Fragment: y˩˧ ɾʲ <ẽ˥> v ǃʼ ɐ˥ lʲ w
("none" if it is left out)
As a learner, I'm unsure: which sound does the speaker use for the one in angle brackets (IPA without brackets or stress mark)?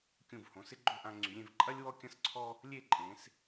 ẽ˥˧